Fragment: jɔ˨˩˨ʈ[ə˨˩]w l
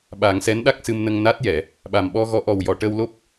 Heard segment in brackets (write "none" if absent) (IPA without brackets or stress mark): ə˧